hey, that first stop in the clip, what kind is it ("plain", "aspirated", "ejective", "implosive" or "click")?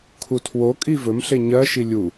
aspirated